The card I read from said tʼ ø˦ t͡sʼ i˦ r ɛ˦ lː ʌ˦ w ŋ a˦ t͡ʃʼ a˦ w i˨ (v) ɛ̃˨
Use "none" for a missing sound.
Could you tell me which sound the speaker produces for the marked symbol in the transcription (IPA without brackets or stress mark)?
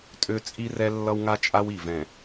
v